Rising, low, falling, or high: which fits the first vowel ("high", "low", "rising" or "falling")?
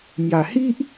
low